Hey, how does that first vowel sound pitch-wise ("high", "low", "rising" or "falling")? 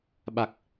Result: low